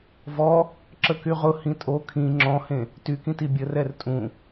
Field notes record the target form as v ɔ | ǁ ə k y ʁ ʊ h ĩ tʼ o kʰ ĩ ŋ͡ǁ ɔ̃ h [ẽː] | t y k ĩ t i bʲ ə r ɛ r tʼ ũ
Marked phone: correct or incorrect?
incorrect